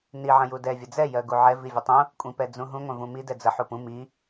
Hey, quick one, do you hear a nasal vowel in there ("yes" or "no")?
yes